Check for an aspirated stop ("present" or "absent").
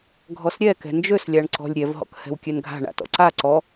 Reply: absent